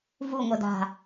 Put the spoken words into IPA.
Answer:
vuŋʷɤ da̤

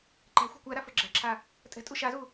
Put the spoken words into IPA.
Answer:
ǃæ̤ xʷɛ̤kʷæɾa fə˞ɡ͡ǁæ̤ǁʰa | tʼɛ̤tʼu ʃazu

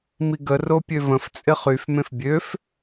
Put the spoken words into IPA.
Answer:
miɡə ropʲøvə̃f t͡sʼɪχyf mẽfbʲøf

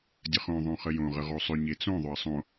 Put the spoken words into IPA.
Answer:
dʲəχõ ðˤõχəjõ ʁəʁosˤʏ ɲet͡sõ ðˤʏɐ̯sˤõ

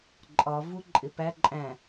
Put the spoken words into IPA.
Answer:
ǃʼɒ vuǃʼɪpæ ǃʼæ̃

